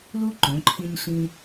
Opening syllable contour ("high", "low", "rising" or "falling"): high